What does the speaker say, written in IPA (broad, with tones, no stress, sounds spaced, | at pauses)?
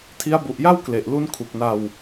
tʰ i˦˥ a̯ b u˨˩ ʔ j a˥˩ w k l e˨˩ ʔ l u˦˥ n kʰ u˨˩ k̚ n a˧ w